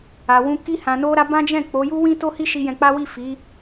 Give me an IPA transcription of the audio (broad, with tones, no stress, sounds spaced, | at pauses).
a˨ w ũ˧ k i˧ h ã˨ n o˧ ɾ a˧ b ã˦ d͡ʒ ɛ̃˦˨ k͡p o˨˦ j u˦ w ĩ˦ t o˦ h i˦ ʃ i˧ j ɛ̃˧ k͡p a˦ w i˦˨ f i˨˦